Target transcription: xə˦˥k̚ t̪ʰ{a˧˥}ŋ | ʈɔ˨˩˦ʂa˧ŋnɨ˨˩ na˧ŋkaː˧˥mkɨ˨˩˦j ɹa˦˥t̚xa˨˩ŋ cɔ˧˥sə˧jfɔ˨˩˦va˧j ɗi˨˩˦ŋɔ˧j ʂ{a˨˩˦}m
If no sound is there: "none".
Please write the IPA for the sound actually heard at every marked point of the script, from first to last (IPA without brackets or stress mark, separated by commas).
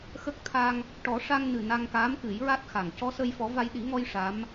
a˧, a˧˥